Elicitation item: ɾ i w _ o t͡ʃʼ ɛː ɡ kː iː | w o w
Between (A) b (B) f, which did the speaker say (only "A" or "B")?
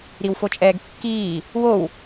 B